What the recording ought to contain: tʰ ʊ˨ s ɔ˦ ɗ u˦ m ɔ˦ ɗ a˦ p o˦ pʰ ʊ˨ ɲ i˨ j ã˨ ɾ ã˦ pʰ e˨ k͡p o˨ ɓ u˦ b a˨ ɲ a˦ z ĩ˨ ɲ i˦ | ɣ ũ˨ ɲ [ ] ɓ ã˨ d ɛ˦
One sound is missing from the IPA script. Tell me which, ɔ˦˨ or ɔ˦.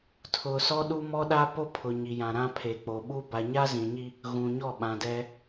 ɔ˦˨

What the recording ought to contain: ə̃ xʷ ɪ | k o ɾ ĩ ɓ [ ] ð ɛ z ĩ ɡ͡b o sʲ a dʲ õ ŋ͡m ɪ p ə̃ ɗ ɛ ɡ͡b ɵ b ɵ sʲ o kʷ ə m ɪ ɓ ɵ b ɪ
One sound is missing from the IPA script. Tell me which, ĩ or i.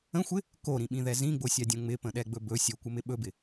ĩ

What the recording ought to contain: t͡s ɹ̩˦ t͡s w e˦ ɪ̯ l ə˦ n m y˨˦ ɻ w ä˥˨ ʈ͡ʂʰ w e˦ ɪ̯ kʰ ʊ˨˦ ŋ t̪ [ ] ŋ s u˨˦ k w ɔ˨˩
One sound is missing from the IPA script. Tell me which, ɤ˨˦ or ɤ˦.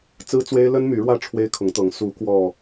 ɤ˨˦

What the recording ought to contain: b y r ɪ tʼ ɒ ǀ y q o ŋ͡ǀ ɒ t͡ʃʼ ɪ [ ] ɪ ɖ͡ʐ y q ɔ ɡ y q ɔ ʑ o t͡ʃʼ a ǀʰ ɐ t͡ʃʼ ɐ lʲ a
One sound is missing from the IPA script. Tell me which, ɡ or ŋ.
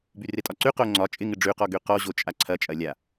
ŋ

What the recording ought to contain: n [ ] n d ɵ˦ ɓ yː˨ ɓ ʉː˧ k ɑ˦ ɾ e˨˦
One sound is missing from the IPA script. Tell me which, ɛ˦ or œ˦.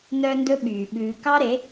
œ˦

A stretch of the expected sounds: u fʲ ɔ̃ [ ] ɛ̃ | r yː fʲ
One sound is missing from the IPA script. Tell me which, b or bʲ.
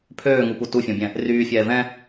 bʲ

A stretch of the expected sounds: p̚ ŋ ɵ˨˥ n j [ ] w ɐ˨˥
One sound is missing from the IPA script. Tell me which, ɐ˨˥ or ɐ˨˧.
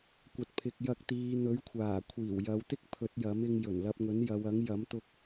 ɐ˨˧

